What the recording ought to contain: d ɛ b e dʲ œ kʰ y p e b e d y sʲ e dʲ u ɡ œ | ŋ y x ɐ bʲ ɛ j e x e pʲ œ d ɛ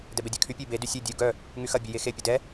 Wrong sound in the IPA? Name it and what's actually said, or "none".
p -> pʲ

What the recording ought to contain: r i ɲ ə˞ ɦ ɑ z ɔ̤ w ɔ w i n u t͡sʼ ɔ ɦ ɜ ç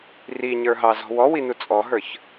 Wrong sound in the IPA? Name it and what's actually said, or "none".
ɜ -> ə˞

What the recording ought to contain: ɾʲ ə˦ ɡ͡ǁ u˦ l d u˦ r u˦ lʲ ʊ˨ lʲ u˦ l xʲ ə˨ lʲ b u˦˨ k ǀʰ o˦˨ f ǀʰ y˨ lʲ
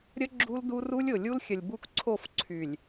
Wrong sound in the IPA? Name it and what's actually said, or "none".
none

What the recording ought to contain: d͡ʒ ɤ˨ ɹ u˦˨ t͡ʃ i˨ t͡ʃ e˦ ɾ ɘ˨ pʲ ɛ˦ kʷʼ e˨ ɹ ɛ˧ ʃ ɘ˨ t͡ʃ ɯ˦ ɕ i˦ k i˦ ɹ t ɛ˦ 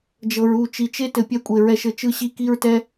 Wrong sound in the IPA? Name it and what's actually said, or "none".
ɾ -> t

